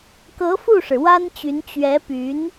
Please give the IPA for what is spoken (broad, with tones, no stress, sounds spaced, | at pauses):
k ɤ˧˥ f u˥˩ ʂ ɻ̩˩ w a˥ n t͡ɕ y˧˥ n t͡ɕ ɥ ɛ˧˥ p y˧˥ n